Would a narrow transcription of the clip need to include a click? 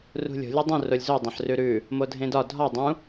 no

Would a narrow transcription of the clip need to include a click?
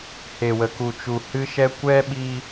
no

